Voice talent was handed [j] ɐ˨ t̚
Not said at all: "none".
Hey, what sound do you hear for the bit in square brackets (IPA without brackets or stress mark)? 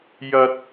j